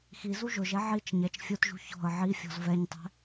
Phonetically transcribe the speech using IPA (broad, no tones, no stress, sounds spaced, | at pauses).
x i z u ʒ ʊ ʒ ɛ ʕ i t͡ʃ ɲ ɛ t͡ʃ fʲ ʊ t ʒ ṳ ç ɔ̤ ə̯ ʕ i fʲ ɔ̤ z v ɛ ɲ tˤ ɛ̤